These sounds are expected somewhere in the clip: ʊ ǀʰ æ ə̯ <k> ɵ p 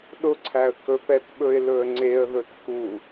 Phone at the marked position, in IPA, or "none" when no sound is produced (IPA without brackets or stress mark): k